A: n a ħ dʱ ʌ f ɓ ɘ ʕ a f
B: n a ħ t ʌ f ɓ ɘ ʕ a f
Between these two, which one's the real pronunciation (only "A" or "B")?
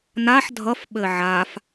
A